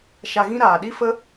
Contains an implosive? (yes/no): yes